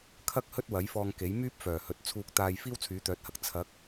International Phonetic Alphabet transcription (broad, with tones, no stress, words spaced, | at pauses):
kʰɐ˥k̚ hɵ˥t̚wɐ˨˥jfɔː˧ŋke˨˥j myː˥p̚fœː˨˩hɵ˨t̚ t͡sʰuː˧k̚t̪aː˧j fiː˥wt͡sʰyː˨˥t̪œː˨˥t̚hɐ˧k̚ t͡sʰɐ˨˥k̚